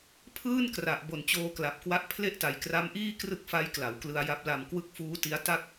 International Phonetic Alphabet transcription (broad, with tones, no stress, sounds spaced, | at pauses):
pʰ ɯː˥˩ n k r a˨˩ ʔ b o˨˩ n t͡ɕ oː˧ k l a˨˩ p̚ k w a˦˥ ʔ pʰ l e˥˩ ʔ t a˨˩ j k r a˦˥ m ʔ iː˥˩ k r ɯ˦˥ k̚ f a˦˥ j k l a˩˦ w k l ɯ˧ a̯ j a˦˥ p̚ l a˧ m k w ɯ˦˥ k̚ f uː˦˥ t i˦˥ a̯ t a˥˩ k̚